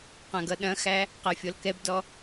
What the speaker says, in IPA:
q ã ɡ ʌ ɗ ɐ̃ x æ | q æ fʲ ɔ l k ɛ b d ɔ

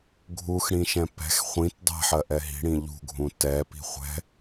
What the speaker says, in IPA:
ɡʱ u x ɽ ĩ ʃ ɛ̃ p ɛ̤ x χʷ ĩ t dˤ ɛ̤ ħ ɜ ʔ ɛ ɦ i̤ ɽ ĩ ʎ ṳ ɡʱ ũ t ɛ p i̤ χʷ ɛ̤

